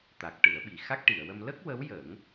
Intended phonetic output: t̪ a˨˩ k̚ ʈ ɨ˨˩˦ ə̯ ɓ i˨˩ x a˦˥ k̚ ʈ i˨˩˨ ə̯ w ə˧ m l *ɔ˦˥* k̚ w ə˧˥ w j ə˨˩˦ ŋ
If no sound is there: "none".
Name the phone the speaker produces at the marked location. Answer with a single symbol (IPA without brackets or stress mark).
ə˦˥